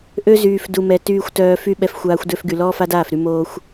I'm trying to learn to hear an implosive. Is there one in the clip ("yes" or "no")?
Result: yes